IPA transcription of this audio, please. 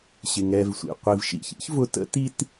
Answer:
ɕɪ˩ŋɛ˨vsʷḭ˩ qʷi˩vʃḭ˨çḭ˥ç vʊ˦tə̰˥ti˥t

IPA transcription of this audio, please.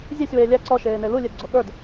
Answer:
zʲesʲ weːlʲæ ǀɔ ʃeːnelu lʲedɡ͡ǀoɠə˞d

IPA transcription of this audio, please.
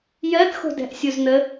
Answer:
jɜd xo̤dɛ̤ʔsʲuzn̪ə

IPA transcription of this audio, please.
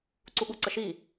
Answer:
ǀuɠuǀəʃi

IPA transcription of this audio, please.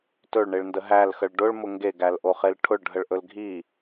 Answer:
tɵɭɳeɭndə ɦælxəɭ ɖʊɭmʊ ŋɡeɡælʔoχel ʈʰʊɭɖʱəɭʔɵl ɡʱi

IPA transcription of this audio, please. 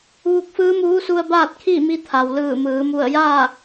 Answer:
ʋu˧k̚fɯː˧˥muː˧˥su˧ə̯ baː˥˨t̚kʰi˥˨mi˧ t̪ʰa˩wlɯː˧˩mɯː˩˧ mu˧˩ə̯ja˥˨

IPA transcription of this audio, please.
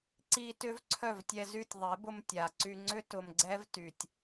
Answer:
ǀi˧ tʏ˦v ǀʰœ˦˨vtʲɛ˧zy˦˨tʲ ðˤe˨˦bʊ˧m tʲa˨ǀy˧ŋ͡ǀʏ˦ tʊ˧mɡ͡ǀɛ˦v ty˨tʲ

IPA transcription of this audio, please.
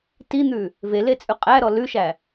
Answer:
tin̪ʉ | velet͡sʼʉ qʼæɾɔ lʉʃæ

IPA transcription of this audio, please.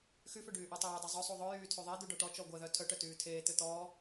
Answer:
xyfø ɖyːʔɔtˤeːdˤœ zˤœsˤu ðˤœjyː tʰyðˤɛd̪u ɖɔʈɔt͡ʃɔ ɡʷɛðœ tʰœʈœ tyːtʰeːt̪ø t̪ɔː

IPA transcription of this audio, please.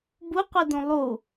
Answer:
buqʷidũ lˠu

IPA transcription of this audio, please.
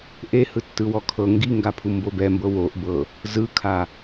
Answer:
ʔehɯ tːɯwɔkʰɤ ŋɡiŋɡapʰu mbobɛmbɤ woʔbɤ | zɯkʰa

